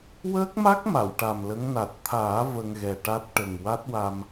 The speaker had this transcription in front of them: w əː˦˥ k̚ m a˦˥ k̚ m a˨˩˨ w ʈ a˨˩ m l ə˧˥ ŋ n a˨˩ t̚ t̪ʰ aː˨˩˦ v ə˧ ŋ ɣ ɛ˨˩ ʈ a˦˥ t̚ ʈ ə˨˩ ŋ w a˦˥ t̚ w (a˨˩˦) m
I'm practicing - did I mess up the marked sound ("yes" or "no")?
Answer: yes